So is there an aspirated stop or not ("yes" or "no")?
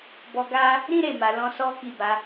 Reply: no